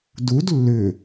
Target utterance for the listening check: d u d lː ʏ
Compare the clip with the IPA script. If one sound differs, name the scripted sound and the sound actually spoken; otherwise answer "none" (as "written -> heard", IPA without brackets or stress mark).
none